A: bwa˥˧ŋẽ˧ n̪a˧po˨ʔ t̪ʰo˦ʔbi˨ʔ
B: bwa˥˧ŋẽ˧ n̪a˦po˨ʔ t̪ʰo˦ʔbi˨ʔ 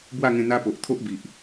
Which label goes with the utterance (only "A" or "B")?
B